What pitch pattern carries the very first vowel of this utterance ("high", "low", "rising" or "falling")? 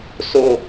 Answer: low